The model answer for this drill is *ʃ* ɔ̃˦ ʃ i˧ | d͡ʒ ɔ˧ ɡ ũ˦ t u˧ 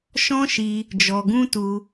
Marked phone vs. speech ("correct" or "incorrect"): correct